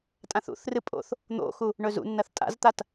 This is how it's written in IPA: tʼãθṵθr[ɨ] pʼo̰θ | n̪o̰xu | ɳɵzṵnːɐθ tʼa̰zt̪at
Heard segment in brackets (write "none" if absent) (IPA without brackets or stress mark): ɨ